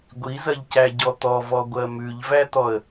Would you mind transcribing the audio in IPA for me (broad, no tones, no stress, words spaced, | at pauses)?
ɡʷizɐʎcæɟɔ t̪ɔvɔɡʷɜ mʉʎvæt̪ɔə̯